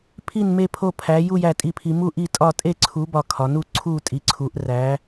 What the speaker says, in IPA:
pʰi˥˨nme˥˨ pʰo˥˨pʰæ˨˥ ju˥˨ jæ˥˨tʼi˥˨pʰi˨˥ mu˥˨ʔi˥˨tʼɒ˥˨ tʼe˥˨ǀʰu˨˥ bɒ˥˨kʰɒ˨˥ nu˥˨ ǀʰu˥˨ tʼi˨˥ǀʰu˨˥ʔ ræ˨˥

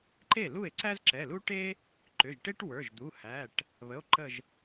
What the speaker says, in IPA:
ǃe˥˩lu˥˩e̯ ǀæ˥zǁɛ˩˧˩lu˥ʈe˥ | ǃʏ˩˧˩ʒʈe˥ʈwə˞˩˧˩ʒd̪u˩˧˩ hæ˩˧˩ʈ | βə˩˧˩o̯ǃə˧˩ʒ

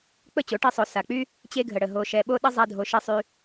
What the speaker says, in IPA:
k͡pə˦˨t͡ɕo˨˦ʈe˧ sˤo˧sa˧ k͡py˦ | t͡ɕe˧ɡʱə˨ɽə˨ ɦo˧ʃɛ˧ ɓo˧ɗə˧ zˤa˦dʱo˧ʃe˦sˤy˧

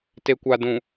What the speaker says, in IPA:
te˨kʷa˨dũ˨

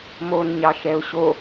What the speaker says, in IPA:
mon ɲɑʃɛʊ̯ɕo

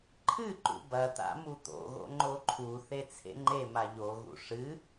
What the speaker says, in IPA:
ǃʰɨǃṵ bɐt̪a̰ mut̪o̰ɣo̰ ŋ͡ǃoǃʰuθe t͡sʰḛŋ͡ǃema ʎoɣṵ ʂɨ

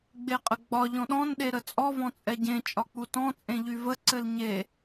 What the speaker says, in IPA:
ɡ͡beqʼəɡ͡bɒ ʎɔ̃ɗɔ̃n ɗeɾət͡sʼɔ vɔ̃t͡sʼɛɟẽ t͡ʃʼɒk͡putɔ̃ t͡sʼẽʎyvə ǀɘlɲe

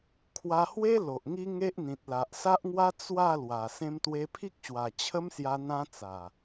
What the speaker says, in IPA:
kʰwa˧hwe˦ lo˨ʔŋi˦ ŋe˦ʔ n̪ĩ˨t̚la˨ʔsa˦ʔŋwa˦ t͡swa˥˧lwa˨˩ sẽ˧mt̪we˧pʰi˦k̚ɕwa˨˩ t͡ɕʰə˦msja˧ n̪ã˧ t͡sa˨˩

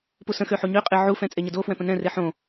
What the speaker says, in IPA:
pusə̃xø ħuɲøqʼe ʕufɛ̃ t͡sʼeɲədofwɛ̃ pə̃nɛ̃re ħõ

